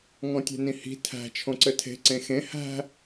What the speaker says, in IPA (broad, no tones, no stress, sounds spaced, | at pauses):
ŋ ɔ̃ tʲ ɛ̤ n ĩ h i̤ tʰ æ̤ t͡ʃʰ õ ǀ ɘ tʰ e̤ ǀ ẽ x ẽ h æ̤